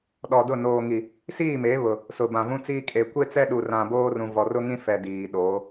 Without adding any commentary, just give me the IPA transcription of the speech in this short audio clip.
ɗ ɔ˨ d ʊ˦˨ n oː˨ ŋ i˨ | s iː˦˨ m e˨˦ β ʊ˨ | s ʊ˨ b ã˨ v ũ˦ t͡s iː˦ kʼ e˨ kʷ e˦ t͡s ɛ˦ ɗ u˨ r ã˨ b oː˦ r ũ˨ v ɔ˨ r ʊ˦ ŋ ĩ˦ f ɛ˨ d iː˨ ɗ oː˨˦

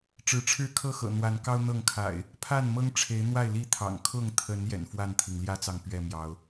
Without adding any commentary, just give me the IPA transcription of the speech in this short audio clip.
ʈ͡ʂ ɻ̩˨˦ ʈ͡ʂʰ ɻ̩˥˨ kʰ ɤ˥˨ x ɤ̰˨˩ n̪ w a˨˦ n k ɑ˦ ʊ̯ n̪ ɤ˥˨ ŋ kʰ a̰˨˩ ɪ̯ | pʰ a˥˨ n m ɤ˦ ŋ ʈ͡ʂʰ e˨˦ ɪ̯ n̪ w a˥˨ ɪ̯ l i˥˨ t̪ʰ ɑ̰˨˩ ŋ kʰ ʊ˥˨ ŋ t̪ʰ ə˨˦ n j ɛ̰˨˩ n f w a˥˨ n t̪ʰ i˩ ŋ l j ä˦ t͡s ɑ˨ ŋ p ɥ ɛ˥˨ m j ɑ˨˦ ʊ̯

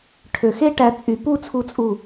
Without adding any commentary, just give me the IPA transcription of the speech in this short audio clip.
ʈʰ ø˧˩ x e˥ ʈ æ˧ t͡sʼ y˧˩ p u˥˧ t͡sʰ u˧ t͡sʼ u˧˩

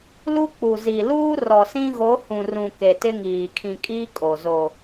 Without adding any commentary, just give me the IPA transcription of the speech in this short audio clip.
l u˦ k͡p u˨ z i˨ l uː˦ r ɔ˨ s ĩ˦ ɣ o˨˦ h ũ˨ r ũ˨ k e˨ t ɪ˦ ŋ iː˨ kʰ ĩ˨ kʼ iː˦ kʼ o˨ z o˨

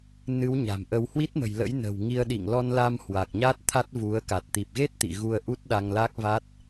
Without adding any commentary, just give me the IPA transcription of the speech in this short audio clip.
n ɨ˨˦ w ɲ a̤˨˩ m ʔ ə˧ w h w i˦˥ t̚ m ə̤˨˩ j l ə̰˧˥ j n ə̤˨˩ w ŋ i˧ ə̯ ɗ ḭ˧˨ ŋ l ɔ˧ n l a˧ m h w a˨˩ k̚ ɲ a˦˥ t̚ t̪ʰ a˦˥ t̚ v u˨˦ ə̯ k a˨˩ t̚ t̪ i˨˩ p̚ ɣ e˦˥ t̚ t̪ ḭ˧˨ ɣ u˧ ə̯ ʔ u˦˥ t̚ ɗ a˧ ŋ l a˦˥ k̚ v a˦˥ t̚

